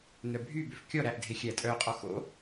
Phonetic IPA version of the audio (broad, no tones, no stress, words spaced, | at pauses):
nœbʱy bøfkʲɔɾæʔdʱe xʲætʼœqʼɔ xo̰